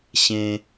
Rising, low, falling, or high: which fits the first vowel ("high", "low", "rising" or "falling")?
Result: high